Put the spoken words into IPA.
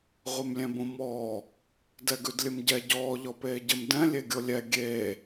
ʁʷɛmlʲɛ̃bõmɔː | dɛɡʉdlʲɘmɟɛ ɟɔː ʎɔpeːɟɘm dɛ̃ lʲeɡʲolʲɛ ɡʲeː

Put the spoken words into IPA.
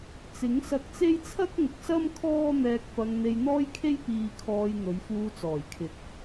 t͡sɪ˨˥ŋ sɐ˧k̚t͡se˥j t͡sʰɐ˥k̚ ŋʊ˨k̚sɐ˥m kʰɔː˥n̪ɛː˧k̚fɐ˧ŋ n̪e˧jn̪ɔː˥jkʰe˥j piː˧kʰɔː˧jn̪ɵ˨˧ɥ fuː˧t͡sɔː˨˩jkʰɪ˨k̚

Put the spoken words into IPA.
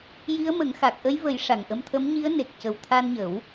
ji˧˥ə̯mə˨˩˦ŋxa˨˩k̚ ʔə˧˥jvə˨˩˦j ʂa˨˩ŋʔə˧mt̪ʰə˧˥m ɲi˧˥ə̯ ne˨˩k̚cə˨˩w t̪ʰa˧nɲə˨˩˦w

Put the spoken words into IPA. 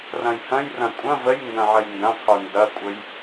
rɐ̃jhɐ̃jrɐ̃ kʷʼɐ̃ vəjŋɡɐ̃ ʕəjndɐ̃qʰu ndɐkʷʼəj

